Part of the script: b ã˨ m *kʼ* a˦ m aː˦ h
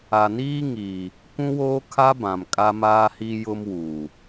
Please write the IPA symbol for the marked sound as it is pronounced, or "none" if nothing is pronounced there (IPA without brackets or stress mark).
kʼ